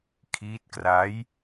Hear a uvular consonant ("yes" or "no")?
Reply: no